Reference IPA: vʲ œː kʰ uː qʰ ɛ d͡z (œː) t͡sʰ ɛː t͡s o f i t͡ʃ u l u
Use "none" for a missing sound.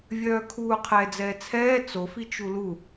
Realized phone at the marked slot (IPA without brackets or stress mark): ɛː